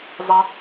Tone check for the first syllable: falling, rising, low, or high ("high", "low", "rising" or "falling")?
low